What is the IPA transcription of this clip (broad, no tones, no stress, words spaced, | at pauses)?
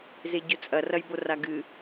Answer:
zeɟɵt͡sʼɐ rɐjboraɡɨ